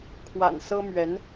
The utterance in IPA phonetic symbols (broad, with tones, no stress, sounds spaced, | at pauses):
kʰ w a̰˨˩ n s ɤ˥ m ɥ ɛ˧˥ n